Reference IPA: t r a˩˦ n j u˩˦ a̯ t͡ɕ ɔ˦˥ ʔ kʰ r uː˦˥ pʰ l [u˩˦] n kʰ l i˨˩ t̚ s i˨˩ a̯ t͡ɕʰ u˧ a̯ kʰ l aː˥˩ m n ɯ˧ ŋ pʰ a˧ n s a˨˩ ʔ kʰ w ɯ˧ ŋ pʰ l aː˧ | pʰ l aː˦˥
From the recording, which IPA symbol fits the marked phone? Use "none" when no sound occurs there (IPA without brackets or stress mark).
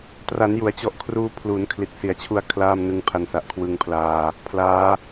u˩˦